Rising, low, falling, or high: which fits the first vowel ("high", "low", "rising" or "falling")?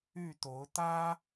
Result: falling